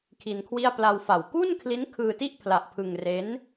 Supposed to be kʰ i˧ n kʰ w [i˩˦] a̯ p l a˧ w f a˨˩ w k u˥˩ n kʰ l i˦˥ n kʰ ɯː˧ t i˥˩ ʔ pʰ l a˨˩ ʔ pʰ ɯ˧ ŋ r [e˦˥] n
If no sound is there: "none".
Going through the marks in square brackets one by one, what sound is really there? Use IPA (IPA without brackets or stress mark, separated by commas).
i˥˩, e˦˥